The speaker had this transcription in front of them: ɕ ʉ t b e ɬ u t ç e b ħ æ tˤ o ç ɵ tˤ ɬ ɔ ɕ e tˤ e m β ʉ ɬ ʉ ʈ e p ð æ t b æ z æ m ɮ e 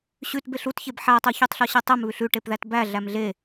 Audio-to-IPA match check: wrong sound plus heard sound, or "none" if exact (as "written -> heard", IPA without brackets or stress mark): z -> ɮ